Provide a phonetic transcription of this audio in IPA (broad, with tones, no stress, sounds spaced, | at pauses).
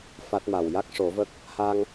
f a˦˥ t̚ m a˨˩ w j a˦˥ k̚ ʂ o˨˩˦ v ə˦˥ k̚ | h a˧ ŋ